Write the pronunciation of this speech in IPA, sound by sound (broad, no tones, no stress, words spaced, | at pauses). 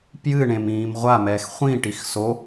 pjɨɳẽm ĩːmʁʷamɛːx χʷĩʈix so